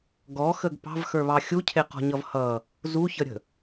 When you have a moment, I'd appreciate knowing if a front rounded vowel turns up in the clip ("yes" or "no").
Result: no